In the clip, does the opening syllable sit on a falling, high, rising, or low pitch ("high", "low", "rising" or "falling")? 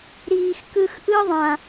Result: low